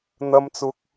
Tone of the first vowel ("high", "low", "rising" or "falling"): high